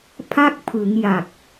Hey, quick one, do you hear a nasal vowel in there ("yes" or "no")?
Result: no